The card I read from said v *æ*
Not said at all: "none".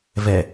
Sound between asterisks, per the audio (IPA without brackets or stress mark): ɛ